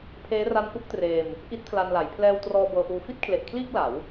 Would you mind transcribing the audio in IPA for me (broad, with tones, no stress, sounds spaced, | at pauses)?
pʰ eː˦˥ r a˦˥ n ʔ u˦˥ k̚ t r eː˧ m | ʔ i˦˥ t̚ pʰ l a˧ n l a˩˦ j pʰ l ɛː˧ w t r ɔː˧ b ɤː˧ ʔ uː˧ f i˥˩ t̚ kʰ l e˨˩ ʔ kʰ l iː˥˩ k̚ l a˩˦ w